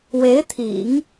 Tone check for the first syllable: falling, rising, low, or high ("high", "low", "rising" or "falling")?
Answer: rising